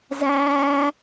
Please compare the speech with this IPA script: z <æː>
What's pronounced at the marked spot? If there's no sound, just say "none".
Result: æː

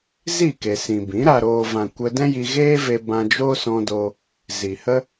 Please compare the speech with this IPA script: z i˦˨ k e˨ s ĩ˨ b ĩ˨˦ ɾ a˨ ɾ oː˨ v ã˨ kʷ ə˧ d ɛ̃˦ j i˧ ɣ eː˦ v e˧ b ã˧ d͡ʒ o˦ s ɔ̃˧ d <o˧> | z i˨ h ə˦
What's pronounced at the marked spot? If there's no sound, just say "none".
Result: o˧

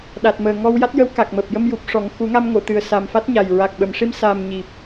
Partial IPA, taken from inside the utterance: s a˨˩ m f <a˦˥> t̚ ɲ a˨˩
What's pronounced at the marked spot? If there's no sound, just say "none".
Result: a˦˥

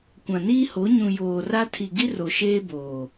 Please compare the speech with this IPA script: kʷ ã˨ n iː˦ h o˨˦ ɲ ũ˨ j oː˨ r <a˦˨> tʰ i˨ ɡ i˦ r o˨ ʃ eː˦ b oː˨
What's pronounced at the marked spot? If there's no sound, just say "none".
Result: a˦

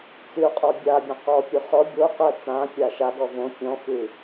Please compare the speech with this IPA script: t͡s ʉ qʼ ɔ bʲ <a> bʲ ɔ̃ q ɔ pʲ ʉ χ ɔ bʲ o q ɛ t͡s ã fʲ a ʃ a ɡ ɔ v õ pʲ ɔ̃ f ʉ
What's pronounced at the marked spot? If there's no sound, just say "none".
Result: a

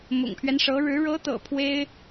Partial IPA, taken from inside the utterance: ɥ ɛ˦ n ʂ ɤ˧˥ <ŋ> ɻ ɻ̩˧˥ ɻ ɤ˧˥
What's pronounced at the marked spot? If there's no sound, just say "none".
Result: none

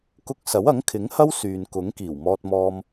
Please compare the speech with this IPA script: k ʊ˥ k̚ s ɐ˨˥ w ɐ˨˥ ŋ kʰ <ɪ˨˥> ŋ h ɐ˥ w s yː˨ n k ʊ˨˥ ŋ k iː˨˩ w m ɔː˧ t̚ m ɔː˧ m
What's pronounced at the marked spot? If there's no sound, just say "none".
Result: ɪ˨˥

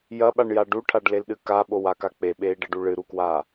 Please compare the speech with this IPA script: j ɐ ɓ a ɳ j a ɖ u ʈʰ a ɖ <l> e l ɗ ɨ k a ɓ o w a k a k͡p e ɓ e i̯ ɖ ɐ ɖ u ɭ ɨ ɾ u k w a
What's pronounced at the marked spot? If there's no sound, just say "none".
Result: l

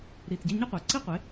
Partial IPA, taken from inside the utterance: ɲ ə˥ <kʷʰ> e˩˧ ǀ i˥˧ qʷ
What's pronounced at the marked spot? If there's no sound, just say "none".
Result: qʷ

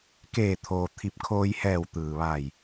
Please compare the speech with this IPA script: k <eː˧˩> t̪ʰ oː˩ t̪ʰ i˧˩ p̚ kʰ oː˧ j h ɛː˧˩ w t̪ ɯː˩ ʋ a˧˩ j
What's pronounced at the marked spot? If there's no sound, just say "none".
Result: eː˧˩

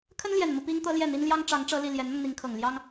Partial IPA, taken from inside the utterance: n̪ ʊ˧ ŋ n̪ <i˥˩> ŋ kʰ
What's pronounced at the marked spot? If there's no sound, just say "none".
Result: i˧˥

